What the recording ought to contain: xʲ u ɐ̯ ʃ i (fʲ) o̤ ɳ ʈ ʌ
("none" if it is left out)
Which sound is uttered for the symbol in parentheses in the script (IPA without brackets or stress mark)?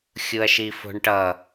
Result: f